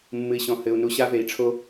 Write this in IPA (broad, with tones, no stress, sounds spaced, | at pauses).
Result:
mː ɨ˨ i̯ ɕ ɔ̃˨ h ɘ˨ u̯ n u˨ ɕ a˦ v e˨ i̯ ʈ͡ʂʰ o˦